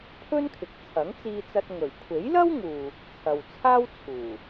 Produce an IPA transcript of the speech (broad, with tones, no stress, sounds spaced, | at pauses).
pʰ ɵ˥ n kʰ ɪ˨ k̚ t͡sʰ ɐ˨˥ ŋ t͡s iː˧ t͡s ɐ˧ t̚ ŋ ɵ˨˩ ɥ kʷʰ e˨˥ j l ɐ˥ w ŋ uː˨ | t͡sʰ ɐ˨ w t͡sʰ aː˥ w t͡sʰ uː˨˩